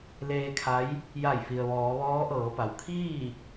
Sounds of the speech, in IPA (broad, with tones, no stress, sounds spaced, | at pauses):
l eː˧ kʰ a˧˥ j | j a˧˩ j f i˩ ə̯ ʋ ɔː˩˧ ʋ ɔː˧˥ ʔ ɤː˩˧ p a˩ w kʰ iː˥˨